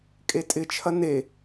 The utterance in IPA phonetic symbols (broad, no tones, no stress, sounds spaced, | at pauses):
kʼ e tʼ ɪ t͡ʃʰ ɐ n e